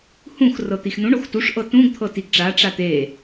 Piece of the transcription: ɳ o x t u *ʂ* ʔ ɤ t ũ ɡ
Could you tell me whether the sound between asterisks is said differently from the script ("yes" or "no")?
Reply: no